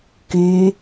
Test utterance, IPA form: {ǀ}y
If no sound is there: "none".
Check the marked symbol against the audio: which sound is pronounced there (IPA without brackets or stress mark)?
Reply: k